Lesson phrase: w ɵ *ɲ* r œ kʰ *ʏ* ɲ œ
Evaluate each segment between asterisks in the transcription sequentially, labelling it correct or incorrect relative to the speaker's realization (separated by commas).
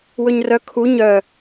correct, incorrect